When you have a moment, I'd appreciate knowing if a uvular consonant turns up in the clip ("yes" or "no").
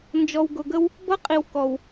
yes